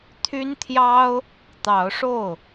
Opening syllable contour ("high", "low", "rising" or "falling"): high